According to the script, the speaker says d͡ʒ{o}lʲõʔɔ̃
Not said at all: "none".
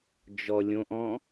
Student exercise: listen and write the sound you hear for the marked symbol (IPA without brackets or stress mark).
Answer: ɔ